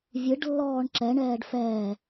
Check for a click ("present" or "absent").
present